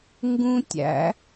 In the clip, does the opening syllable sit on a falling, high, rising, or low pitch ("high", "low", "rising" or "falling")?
high